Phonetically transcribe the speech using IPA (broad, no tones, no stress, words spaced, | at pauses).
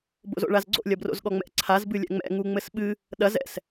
bo̰zo̰ɭazɡ͡ǀo̰ lʲɐbro̰zɠɔŋ͡mɛ̰ ǀʰaz bɨlʲɛ̰ŋ͡mɛ̰ ŋuŋ͡mɘsɓɨ | ɗɐz ɛ̰s